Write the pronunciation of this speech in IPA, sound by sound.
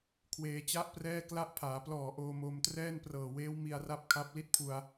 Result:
kʰ w eː˧ t͡ɕ a˥˩ ʔ p r ɛː˥˩ k l a˦˥ ʔ pʰ aː˩˦ p l ɔː˨˩ ʔ oː˧ m oː˧ m t r ɛː˥˩ n p r ɤː˨˩ w eː˦˥ w m i˧ a̯ r a˦˥ p̚ kʰ a˦˥ p̚ l i˦˥ t̚ pʰ u˧ a̯

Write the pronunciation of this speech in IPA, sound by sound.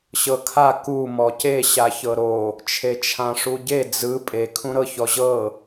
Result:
ɕ ɤ kʰ a k u m ɔ c e ɕ a ç ɤ ɾ o | t͡ʃʰ e t͡ʃʰ ã ʂ u ɟ e d͡z ɯ pʼ e kʰ ũ ɾ ɤ ç ɔ ʑ ɤ

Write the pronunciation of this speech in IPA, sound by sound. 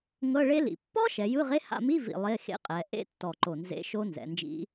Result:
ŋ ɤ˧˥˧ ɭ e˦˥ l ḭ˨˩ pː ɔ˦˥ ʃ ɛ˩˧ j ɯ˧˥˧ ʁ e˧˥˧ h a̰˦˨ m i˧˥˧ v ḭ˨˩ lˠ e˧˥˧ x ḛ˦˥ qʼ ɛ˩˧ ʔ ḛ˦˥ tː ɔ˨˩ ǃ o˨˩ n z ḛ˧˥˧ ʃ o˦˥ n z ɛ̰˩˧ n d͡ʒ ḭ˦˥

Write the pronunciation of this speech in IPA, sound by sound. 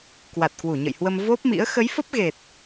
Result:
k w a˨˩ t̚ k w u˧˩ ɲ ə̰˧˨ j h w ə˧ m v o˦˥ p̚ m ḭ˧˥ ə̯ x ə˨˦ j f ə˦˥ p̚ ɣ e˨˩ t̚

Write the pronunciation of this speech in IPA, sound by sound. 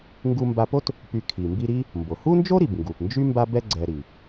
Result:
ŋ ɡ u˧ m b a˧ p o˥ t | p y˧ kʰ i˩ m b i˧ ɾ i˥ | m b o˩ h u˥ n d͡ʒ o˥ ɾ i˩ b ŋ ɡ u˩ p n d͡ʒ y˥ m b a˥ b ɛ˥ ɡ͡ǀ ɛ˧ ɾ i˩

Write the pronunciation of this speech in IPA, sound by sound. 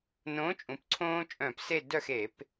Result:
n õː˨˥ t͡ʃʼ ũ˩˧ p ǀʰ õː˦ t͡ʃʼ œ̃˧˩˧ p s e˦˨ d œ˦˨ x e˧˩˧ p

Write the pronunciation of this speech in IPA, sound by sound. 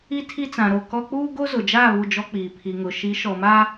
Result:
i˦ tʰ i˦ t͡s ã˨ ɾ o˦˨ k ɔ˦ k͡p uː˦ ɡ o˦ z ʊ˨ d͡ʒ aː˦˨ β u˦˨ d͡ʒ ɔ˦ k͡p iː˨ pʰ i˨ ŋ ʊ˨ ʃ i˨˦ ʃ ɔ˨ m a˦

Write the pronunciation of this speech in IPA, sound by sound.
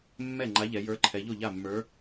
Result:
mː ɛ˥˩ ŋ͡ǃ a˨˥ ʎ ɛ˩˧ j ə˞˨˥ ǃʰ ɛ˩˧ ʎ o˥˩ ʎ a˥˩ mː ə˞˨˥

